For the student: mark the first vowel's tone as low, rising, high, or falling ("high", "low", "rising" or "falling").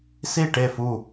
falling